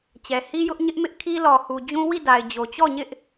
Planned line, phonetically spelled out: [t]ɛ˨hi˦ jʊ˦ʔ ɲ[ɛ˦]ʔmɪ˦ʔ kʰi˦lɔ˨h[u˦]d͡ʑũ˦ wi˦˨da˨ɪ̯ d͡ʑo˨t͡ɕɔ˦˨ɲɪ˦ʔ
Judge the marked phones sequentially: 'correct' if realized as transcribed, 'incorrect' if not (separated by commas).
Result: incorrect, incorrect, incorrect